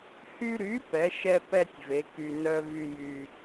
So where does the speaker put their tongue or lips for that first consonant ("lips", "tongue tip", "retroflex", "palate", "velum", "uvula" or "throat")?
throat